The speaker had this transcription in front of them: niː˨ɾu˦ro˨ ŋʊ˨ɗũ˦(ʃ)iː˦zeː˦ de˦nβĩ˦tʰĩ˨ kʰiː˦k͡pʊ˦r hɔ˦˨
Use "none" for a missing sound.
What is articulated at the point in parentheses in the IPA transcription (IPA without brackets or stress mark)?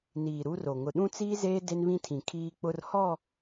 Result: t͡s